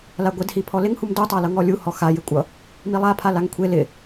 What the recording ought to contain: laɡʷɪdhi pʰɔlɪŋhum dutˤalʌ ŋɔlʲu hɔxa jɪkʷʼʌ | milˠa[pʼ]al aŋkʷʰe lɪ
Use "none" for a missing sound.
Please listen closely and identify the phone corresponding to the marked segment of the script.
pʰ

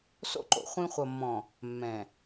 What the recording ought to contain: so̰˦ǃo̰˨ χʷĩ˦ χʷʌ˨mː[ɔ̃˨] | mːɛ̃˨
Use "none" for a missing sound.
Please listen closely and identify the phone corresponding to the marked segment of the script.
ɔ̃˨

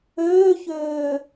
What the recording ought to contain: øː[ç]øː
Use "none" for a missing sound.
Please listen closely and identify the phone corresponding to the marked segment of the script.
ç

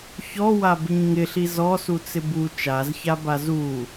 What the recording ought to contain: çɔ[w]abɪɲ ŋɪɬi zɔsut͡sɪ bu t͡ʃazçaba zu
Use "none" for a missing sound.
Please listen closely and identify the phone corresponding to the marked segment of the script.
w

